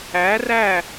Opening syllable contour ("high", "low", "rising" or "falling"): rising